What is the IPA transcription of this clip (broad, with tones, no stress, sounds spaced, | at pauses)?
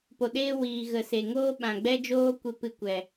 p o˨ ɗ eː˦ w iː˨ ɣ ə˨ s e˨ ŋ oː˦ ɓ ã˨ ɡ͡b ɛ˦ d͡ʒ oː˦ kʷ e˧ p ɨ˧ kʷ ɛ˨